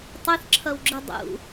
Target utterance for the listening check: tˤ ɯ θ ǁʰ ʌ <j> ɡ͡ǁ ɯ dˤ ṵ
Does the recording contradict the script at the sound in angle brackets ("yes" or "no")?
yes